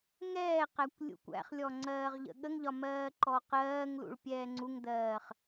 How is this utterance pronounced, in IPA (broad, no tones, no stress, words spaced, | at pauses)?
ŋɛːqækʷ lʲṵkʷæ̰χlʲɔ ŋ͡ǀɜːʁʎə̰ɠəŋʎɒ mɜːǃɔqɜːŋlṵɭ pʲɛːŋ͡ǀuŋdɜːχ